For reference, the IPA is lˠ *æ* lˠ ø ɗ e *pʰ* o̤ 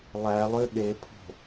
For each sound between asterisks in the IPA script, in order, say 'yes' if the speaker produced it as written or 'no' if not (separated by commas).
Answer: yes, yes